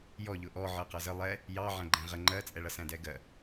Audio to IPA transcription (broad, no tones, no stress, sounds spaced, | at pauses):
j ɔ ʎ ʊ ʔ ɔ ʕ ɜ q ʌ z ə lˠ ɛ | j ɑ ʕ æ̃ ɡ͡ǃ æ̃ ʁ ə ŋ͡ǃ ɜ t͡sʼ ɛ ɭ ʌ s æ̃ d ɛ ɡ ɜ